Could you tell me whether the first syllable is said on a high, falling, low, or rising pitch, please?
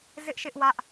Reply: high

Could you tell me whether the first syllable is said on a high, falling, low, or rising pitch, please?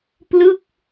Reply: falling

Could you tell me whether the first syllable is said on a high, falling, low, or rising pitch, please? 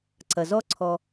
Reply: low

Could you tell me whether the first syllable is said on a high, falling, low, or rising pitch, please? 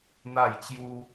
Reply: falling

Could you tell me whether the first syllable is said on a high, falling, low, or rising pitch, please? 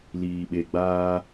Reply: low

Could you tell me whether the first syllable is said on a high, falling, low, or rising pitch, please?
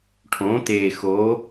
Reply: rising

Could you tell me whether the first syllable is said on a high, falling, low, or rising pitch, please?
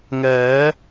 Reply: rising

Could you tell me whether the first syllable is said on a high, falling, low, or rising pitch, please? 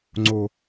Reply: low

